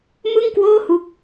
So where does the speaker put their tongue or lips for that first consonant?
lips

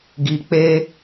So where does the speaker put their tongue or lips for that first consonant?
velum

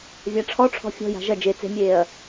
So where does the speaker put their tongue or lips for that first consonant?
lips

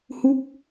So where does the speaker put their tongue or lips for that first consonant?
throat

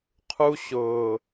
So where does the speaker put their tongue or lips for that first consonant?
uvula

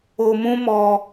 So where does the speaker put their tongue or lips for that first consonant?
lips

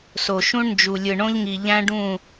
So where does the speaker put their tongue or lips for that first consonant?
tongue tip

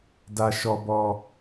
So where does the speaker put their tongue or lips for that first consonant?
tongue tip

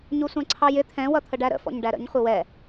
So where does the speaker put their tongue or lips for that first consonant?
palate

